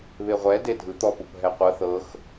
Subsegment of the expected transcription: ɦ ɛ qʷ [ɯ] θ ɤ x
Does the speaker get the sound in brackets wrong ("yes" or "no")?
yes